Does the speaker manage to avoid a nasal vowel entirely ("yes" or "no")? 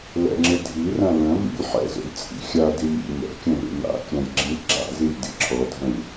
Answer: no